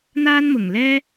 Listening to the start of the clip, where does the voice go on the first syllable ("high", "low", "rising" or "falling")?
high